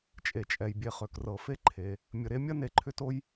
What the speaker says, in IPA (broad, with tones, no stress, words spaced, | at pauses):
t͡ʃʼe˩t͡ʃʼɛ˩j bʲe˨χø˩k rɤ˩fe˦ǃʰe˩ | mʲə˨ɾe˥mʲɐ˥ ne˨ǃʰʏ˥to˥j